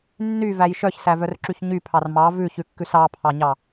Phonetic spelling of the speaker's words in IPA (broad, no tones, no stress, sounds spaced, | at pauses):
nː y v æ j ʃ œ ç s æ v œ r ǁ y ç ɲ y pʰ ɑ r m ɑ v ʉ ç ʉ kː ʉ s ɑ pʰ ɑ ɲ ɑ